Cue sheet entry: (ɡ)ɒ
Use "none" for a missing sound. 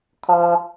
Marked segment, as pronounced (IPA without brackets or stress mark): kʰ